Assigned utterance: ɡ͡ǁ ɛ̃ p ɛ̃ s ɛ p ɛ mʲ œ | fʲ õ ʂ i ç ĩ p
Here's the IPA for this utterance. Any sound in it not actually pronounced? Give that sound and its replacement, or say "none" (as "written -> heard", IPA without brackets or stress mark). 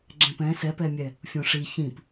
œ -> ɛ